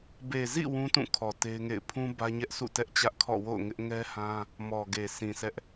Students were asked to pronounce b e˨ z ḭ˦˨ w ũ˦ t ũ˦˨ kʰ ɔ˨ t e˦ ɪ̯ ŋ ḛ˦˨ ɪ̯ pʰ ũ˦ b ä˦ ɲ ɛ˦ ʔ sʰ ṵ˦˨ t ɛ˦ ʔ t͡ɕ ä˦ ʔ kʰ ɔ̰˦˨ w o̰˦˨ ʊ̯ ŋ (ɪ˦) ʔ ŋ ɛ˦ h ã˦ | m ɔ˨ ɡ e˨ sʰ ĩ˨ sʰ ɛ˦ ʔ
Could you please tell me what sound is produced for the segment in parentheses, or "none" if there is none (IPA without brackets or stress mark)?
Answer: ɪ˦